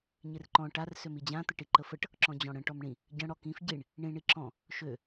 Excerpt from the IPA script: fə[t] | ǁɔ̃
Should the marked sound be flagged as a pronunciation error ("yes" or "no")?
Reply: yes